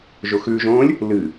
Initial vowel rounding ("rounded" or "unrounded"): rounded